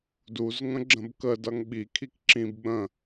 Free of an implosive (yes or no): no